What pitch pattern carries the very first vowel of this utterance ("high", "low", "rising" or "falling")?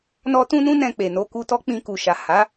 high